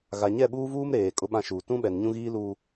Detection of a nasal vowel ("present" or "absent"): present